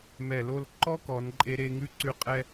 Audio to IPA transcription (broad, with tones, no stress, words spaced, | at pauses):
mɛ˧˩lo˥˧l ǃɔ˥kɔ˩˧nǃʼe˧ ɾe˥˧ŋʉ˥ ǀʉ˥ qʼɛ˥